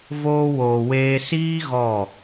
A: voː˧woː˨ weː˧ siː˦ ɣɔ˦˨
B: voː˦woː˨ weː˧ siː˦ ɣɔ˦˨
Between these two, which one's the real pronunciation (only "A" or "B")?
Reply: A